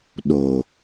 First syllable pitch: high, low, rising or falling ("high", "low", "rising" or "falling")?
low